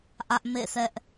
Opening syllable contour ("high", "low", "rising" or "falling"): high